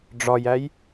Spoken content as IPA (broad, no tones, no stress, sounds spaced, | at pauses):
ɖ͡ʐ ɒ j æ j